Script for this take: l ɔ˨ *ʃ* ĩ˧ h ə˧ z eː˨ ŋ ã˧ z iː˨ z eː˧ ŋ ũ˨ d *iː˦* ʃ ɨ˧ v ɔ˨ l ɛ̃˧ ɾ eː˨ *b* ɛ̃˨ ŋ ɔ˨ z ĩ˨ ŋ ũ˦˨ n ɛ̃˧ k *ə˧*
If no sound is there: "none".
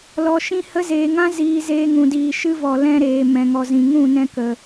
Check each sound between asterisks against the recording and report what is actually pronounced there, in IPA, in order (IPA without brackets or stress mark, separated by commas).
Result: ʃ, iː˨, m, ə˨